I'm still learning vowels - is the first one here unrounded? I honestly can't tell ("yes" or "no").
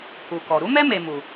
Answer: no